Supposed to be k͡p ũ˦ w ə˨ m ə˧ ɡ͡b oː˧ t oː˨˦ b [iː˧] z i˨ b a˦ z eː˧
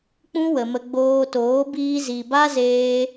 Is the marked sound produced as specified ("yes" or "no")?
yes